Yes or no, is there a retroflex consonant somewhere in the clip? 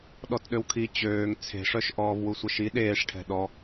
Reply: yes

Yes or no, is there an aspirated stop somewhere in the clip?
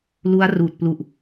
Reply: no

